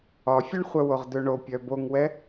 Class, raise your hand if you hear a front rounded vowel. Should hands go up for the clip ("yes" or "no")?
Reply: yes